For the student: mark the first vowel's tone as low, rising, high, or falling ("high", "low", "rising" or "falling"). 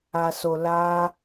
low